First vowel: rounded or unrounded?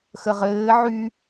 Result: unrounded